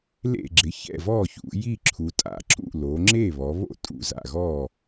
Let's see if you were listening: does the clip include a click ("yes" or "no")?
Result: yes